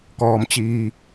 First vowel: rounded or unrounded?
rounded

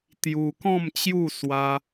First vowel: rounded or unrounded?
rounded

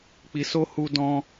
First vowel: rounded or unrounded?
unrounded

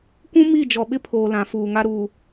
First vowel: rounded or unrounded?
rounded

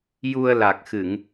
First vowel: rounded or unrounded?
rounded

